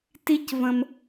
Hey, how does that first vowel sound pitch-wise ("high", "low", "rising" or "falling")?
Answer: high